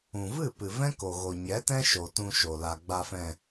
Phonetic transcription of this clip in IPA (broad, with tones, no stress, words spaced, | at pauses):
ũ˨vɨ˦˨pɨ˨ vɛ̃˦ ko˨ɣo˨ɲɛ˨˦tɛ̃˦ ʃo˨tũ˧ʃo˨la˨ ɡ͡ba˨fɛ̃˨